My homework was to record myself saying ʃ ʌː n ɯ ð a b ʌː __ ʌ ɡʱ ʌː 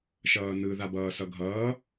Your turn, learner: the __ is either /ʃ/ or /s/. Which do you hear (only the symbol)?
s